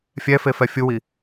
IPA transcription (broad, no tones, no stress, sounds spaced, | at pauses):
fʲ ɛ f e f ɛ fʲ u w i